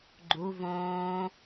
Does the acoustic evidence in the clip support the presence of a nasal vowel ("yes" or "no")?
yes